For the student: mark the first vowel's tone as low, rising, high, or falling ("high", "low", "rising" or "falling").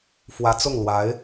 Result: rising